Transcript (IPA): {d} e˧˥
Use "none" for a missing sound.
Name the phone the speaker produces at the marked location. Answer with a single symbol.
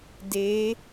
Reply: d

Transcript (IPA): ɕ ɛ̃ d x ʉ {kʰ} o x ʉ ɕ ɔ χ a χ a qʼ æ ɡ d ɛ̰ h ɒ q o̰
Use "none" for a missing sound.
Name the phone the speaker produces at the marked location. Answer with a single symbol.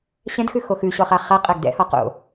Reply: x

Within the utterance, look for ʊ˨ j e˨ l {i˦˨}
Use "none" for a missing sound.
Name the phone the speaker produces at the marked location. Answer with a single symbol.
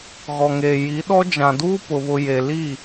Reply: i˦˨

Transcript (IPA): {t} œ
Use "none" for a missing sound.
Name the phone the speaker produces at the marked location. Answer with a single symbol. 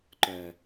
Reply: ǃ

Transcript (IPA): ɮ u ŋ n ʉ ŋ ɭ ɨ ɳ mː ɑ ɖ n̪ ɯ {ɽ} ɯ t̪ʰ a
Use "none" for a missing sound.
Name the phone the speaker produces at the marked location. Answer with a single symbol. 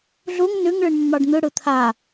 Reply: ɽ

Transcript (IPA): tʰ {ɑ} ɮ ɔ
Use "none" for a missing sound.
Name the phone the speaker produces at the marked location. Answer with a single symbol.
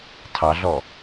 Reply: ɑ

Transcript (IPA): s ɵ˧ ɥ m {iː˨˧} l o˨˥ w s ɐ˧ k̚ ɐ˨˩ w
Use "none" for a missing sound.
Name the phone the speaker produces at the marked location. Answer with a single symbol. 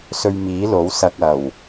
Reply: iː˨˥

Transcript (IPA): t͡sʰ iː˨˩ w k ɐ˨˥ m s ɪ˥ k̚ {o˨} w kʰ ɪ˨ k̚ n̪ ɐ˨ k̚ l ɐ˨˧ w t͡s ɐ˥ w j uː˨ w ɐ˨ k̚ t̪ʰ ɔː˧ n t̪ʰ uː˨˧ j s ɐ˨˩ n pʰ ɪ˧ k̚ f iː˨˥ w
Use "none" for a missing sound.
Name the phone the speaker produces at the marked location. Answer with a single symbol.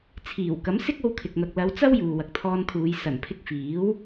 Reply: o˧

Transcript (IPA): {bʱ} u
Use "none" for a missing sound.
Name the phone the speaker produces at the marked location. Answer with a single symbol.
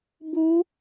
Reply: b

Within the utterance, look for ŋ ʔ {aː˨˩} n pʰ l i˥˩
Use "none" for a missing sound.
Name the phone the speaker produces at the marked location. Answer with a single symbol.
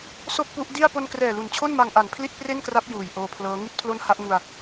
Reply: a˨˩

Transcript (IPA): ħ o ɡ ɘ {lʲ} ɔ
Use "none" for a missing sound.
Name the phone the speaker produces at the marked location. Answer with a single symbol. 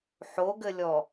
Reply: lʲ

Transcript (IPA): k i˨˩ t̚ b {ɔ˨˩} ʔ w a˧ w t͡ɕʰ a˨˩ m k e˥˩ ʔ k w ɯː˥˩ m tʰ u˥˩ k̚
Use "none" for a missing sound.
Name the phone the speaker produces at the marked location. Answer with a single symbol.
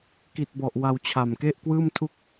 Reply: ɔ˨˩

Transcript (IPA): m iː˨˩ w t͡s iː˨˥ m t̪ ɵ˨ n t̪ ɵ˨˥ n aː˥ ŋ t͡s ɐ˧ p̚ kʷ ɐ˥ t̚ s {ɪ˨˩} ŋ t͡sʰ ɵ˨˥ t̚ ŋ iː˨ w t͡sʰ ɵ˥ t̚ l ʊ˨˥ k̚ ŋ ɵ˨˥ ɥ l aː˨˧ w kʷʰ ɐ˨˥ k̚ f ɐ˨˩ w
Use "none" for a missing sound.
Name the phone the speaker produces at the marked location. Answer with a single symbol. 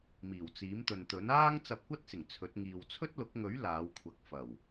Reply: ɪ˨˩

